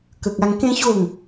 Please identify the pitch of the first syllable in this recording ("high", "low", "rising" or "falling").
low